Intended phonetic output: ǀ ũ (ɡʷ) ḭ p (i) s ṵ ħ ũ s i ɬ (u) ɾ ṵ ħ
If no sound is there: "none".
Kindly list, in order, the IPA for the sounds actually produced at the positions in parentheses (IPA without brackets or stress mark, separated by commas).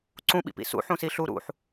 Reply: ɓ, ḭ, u